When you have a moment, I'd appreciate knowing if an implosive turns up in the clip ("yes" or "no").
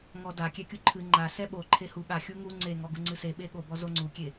yes